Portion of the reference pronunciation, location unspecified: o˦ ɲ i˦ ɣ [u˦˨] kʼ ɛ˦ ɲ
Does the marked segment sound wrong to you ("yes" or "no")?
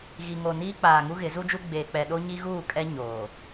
yes